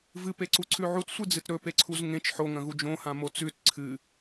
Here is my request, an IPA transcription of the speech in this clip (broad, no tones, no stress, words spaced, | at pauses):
vɨpeǀuǀʰʉ ʕutsʷɨd͡zɨt ɾɵpeǀʰuz ŋẽt͡ʃ ħoŋɐ̃ɣu d͡ʒõhãmo t͡sʉt ǀʰɨ